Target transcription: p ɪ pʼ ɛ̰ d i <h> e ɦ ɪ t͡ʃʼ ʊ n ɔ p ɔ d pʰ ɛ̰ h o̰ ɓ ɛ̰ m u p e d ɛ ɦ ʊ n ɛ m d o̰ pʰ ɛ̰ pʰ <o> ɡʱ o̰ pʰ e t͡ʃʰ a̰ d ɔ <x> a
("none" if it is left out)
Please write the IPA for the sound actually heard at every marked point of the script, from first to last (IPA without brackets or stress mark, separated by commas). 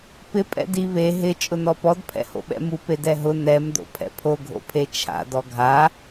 β, o, ɡʱ